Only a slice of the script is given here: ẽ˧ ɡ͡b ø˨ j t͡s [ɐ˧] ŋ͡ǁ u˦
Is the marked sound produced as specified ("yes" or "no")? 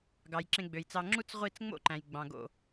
no